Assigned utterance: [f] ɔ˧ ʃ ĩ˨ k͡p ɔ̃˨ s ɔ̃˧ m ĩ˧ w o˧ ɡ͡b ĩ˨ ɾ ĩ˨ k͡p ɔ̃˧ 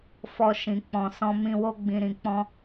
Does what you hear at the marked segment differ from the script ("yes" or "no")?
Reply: no